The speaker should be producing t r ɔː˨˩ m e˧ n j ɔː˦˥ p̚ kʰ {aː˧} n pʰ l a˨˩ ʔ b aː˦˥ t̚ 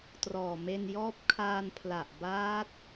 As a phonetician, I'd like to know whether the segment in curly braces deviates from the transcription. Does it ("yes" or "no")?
no